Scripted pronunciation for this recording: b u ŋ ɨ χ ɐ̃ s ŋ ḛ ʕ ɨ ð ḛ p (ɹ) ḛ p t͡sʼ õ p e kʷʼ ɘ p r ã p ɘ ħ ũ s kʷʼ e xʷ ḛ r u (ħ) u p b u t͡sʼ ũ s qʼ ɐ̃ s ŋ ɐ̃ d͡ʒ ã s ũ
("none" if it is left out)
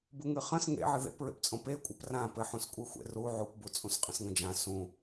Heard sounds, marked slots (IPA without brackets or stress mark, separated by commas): ɹ, ʕ